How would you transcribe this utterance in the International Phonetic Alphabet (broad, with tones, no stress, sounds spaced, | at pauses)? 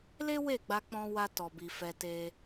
l e˦ w e˦˨ ɡ͡b a˧ k͡p ɔ̃˦ w a˦ t ɔ˧ b i˧ f ɛ˧ t e˦